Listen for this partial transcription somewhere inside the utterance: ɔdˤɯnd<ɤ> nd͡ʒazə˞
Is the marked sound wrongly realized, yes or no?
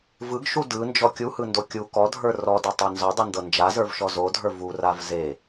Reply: no